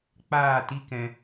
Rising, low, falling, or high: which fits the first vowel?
falling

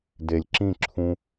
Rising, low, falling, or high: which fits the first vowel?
low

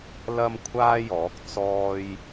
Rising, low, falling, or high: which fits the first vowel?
high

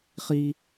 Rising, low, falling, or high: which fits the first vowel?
high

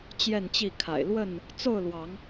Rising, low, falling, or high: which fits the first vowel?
falling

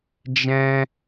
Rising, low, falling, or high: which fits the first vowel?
high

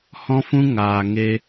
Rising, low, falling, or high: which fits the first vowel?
high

